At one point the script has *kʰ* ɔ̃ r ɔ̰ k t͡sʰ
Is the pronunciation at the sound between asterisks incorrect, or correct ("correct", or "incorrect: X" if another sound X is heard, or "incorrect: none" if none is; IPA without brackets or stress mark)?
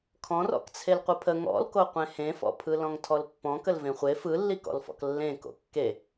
correct